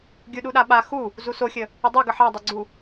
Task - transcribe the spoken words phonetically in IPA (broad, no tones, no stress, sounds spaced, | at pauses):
ɡʲ u ɗ u ɗ a ɓ a x u | z u s o xʲ ə | ə dˤ o ɡ ə ħ ɑ dˤ o ɡ͡ǀ u